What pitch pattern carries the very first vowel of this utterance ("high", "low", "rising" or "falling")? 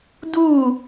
falling